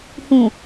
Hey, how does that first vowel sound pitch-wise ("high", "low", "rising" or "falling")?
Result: low